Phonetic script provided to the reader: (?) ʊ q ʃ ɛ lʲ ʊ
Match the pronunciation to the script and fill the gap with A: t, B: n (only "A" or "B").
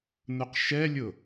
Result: B